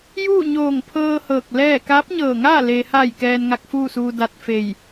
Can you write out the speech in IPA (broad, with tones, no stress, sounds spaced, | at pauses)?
j uː˥˨ ɲ oː˧˩ ŋ pʰ ɤː˧ h ɤː˧˩ k̚ l ɛː˥˨ k aː˧˥ p̚ ɲ ɤː˧˩ ŋ aː˥˨ l e˩ h a˧˩ j k ɛː˧ n ŋ a˧˥ k̚ f uː˥˨ s uː˧ d a˧ t̚ f e˧˩ j